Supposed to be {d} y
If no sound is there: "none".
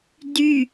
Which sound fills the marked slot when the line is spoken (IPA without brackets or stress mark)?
d